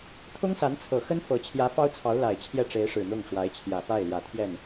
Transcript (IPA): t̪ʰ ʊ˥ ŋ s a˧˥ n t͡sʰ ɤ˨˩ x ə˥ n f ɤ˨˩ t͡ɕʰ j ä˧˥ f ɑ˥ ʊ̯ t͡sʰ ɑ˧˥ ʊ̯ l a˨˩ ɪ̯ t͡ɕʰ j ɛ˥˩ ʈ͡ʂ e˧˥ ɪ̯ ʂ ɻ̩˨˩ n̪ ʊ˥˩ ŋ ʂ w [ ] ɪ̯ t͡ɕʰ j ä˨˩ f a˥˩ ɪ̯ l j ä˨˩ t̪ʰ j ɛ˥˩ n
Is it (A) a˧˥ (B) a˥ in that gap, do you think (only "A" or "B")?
A